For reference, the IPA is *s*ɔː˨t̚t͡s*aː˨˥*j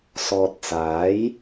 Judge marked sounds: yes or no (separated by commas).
yes, yes